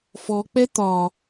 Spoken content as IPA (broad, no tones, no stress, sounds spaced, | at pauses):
f ɔ k͡p ɛ t̪ ɒ